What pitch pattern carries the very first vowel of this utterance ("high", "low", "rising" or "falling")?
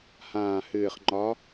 low